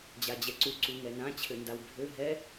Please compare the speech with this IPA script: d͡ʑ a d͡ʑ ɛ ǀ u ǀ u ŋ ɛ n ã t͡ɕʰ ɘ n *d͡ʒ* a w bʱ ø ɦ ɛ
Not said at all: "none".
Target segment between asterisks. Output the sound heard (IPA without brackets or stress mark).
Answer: d